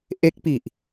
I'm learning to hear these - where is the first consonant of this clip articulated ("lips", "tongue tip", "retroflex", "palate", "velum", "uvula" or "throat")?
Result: throat